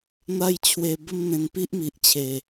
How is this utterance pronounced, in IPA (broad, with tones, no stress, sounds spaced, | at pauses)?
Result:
n̪ a˥˧ j t͡ɕʰ w e˧ b ə˥˧ m n̪ ẽ˧ n p i˦ ʔ m i˨ ʔ t͡ɕʰ e˨˩